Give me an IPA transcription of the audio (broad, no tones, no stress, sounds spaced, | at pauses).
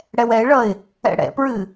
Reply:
ɽ ɛ w ɛ ɪ̯ ɭ ʌ ɪ̯ | ɛ̰ ɽ ɛ̰ p ɹ ɨ